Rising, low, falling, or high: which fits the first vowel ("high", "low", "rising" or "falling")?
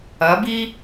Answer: rising